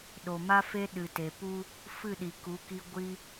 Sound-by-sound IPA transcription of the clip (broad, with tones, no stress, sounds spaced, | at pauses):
ɗ o˨ m a˦ f e˦ ɗ ɨ˨ t e˨ p u˧ | f ɨ˦˨ ɗ i˨ k u˨˦ k i˧ ɡʷ i˧